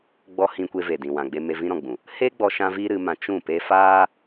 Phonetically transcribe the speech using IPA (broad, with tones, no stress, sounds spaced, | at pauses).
ɡ͡b ɔ˧ h ĩ˧ kʷ e˧ v e˨ d ĩ˨ w ã˨ ɡ͡b e˧ m e˧ v ĩ˧ ɾ ɔ̃˨ ɡ͡b ũ˨ | h eː˦ ɡ͡b ɔ˧ ʃ ã˦ v iː˦ ɾ ɨ˧ m ã˧ t͡ʃ ũ˦˨ p e˦ f aː˦